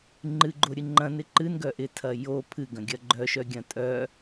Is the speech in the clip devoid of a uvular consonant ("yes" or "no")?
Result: yes